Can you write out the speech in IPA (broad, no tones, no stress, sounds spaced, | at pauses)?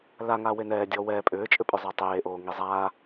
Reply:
l a ŋ aː w e n ɛː dʲ ɔː w ɛː pʼ ʏː t͡ʃʼ ʏ pʼ ʏ zˤ ɛ tˤ eː ʔ oː ŋ i zˤ aː